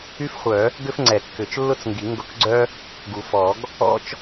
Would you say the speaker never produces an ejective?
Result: yes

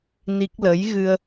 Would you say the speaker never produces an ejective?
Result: yes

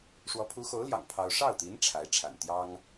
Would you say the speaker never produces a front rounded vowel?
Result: yes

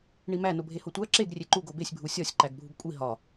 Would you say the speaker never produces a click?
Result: no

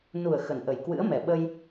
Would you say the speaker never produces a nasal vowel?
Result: yes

